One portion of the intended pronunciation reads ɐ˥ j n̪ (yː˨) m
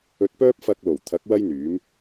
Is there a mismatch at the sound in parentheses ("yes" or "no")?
yes